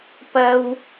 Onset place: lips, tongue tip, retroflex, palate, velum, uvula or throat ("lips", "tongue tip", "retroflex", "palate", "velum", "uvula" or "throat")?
lips